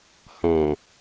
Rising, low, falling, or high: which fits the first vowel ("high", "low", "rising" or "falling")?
low